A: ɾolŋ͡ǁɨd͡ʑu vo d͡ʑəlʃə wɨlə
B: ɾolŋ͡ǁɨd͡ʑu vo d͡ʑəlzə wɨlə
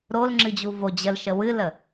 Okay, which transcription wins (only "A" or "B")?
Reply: A